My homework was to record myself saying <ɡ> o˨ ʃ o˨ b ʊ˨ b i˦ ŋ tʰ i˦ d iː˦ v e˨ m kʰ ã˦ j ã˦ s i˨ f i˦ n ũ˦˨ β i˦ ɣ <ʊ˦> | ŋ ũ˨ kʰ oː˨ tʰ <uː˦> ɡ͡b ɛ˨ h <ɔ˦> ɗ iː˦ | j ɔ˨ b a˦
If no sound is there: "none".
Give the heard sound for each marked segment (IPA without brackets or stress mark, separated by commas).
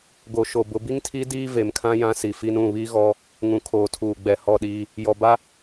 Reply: ɡ, ɔ˦, uː˨, ɔ˦˨